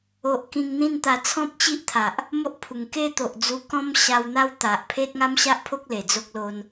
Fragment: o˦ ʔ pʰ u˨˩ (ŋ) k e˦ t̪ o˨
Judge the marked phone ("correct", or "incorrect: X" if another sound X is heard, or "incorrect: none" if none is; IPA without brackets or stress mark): correct